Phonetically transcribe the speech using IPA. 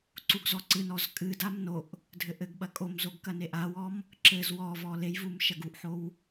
ǀ u ɡ z ɔ ǀ ɨ n ɔ z kʼ ɨ d a m n o ʔ | dʱ ɘ ʔ ɘ ɡ ɓ ɐ kʼ o m z o ɡ k ɐ n e ʔ a w ɔ m | ǁ ɘ z w ɔ v ɔ l e j v u m ʃ ɐ ɡ u ʔ ħ o w

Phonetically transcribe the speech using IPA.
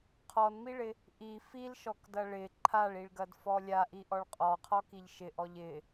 qʰ ɔ n m i ɭ ɪ | ʔ i f i l ʃ ɔ k d ɐ ɭ ɪ ǃʰ a ɭ i ɭ ɡ ɐ d f ɔ lʲ a ʔ i ʔ ɔ ɭ qʼ ɔ qʰ ɔ k i ʎ ʃ ɪ ʔ ɔ ʎ ɪ

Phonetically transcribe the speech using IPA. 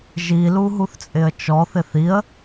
ʒ i l u ɦ u θ t͡sʼ ɪ ə̯ t͡ʃ ɔ θ ɪ θ i ə̯

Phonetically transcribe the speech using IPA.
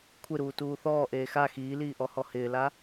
kʷʰ ɪ ɾ uː t uː θ ɔː ʔ eː x a x iː l iː ʔ ɔ h ɔ h ɪː l a

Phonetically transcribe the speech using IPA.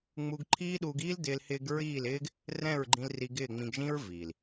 ŋ͡m u˧ ɡ ǃʰ iː˦ ɗ uː˧ ɡ iː˦ l d ɪː˧ l h ɪː˧ ɡ ɹ iː˦˨ l ɪː˦ ɡ | r ɛ̃˦˨ ɹ ɡ͡ǃ ĩ˧ l r i˧ ɡ ɪː˦˨ ŋ͡m ĩ˧ ɡ ʒ ĩ˦ ɹ v iː˨ l

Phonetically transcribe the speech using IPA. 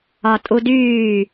ɒ tʼ u d yː

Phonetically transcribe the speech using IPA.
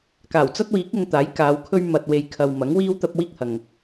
k aː˨˩ w t͡s ɐ˥ t̚ w iː˨˥ k̚ ʊ˧ ŋ t̪ aː˨˥ j k aː˨˧ w kʰ ɵ˥ ɥ m ɐ˨ t̚ w e˨ j kʰ ɐ˨ w m ɐ˨˥ ŋ w iː˥ w t̪ ɐ˥ p̚ w iː˥ k̚ h ɐ˨ ŋ

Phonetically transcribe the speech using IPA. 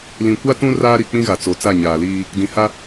l ĩ˨ kʷ a˦ t ũ˦ r aː˦ ɾ i˨ k͡p ĩ˦ ɣ a˨ t͡s o˨˦ t͡s a˦˨ ɲ aː˨ l iː˦ | d ĩ˨ h a˦

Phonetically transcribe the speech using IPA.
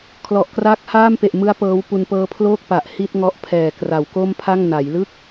kʰ l ɔ˨˩ ʔ k r aː˦˥ k̚ h aː˥˩ m p e˨˩ ʔ m ɯ˦˥ a̯ p ɤː˦˥ w p u˧ n p ɤː˦˥ pʰ l oː˥˩ k̚ p a˨˩ ʔ h i˥˩ t̚ ŋ ɔ˦˥ ʔ pʰ ɛː˨˩ k r a˩˦ w k o˥˩ m pʰ a˥˩ ŋ n a˩˦ j l ɯ˥˩ k̚

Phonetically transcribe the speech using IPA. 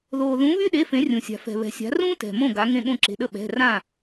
ð oː˩ ð ũ˩˧ β y˦ ɗ e˩˧˩ f ẽ˩˧ rʲ ũ˩ sʲ a̤˩ f ɛ̤˩ β ɛ̤˩ sʲ a̤˩˧ r ũː˦ t ɛ̤˩ m õ˧˩ ɡ a˩˧ ŋ ẽ˧˩ ɠ õ˥˩ ǁ e̤˩˧˩ ɗ ə˥˩ ɓ ɛ̤˩˧˩ r ã˥˩

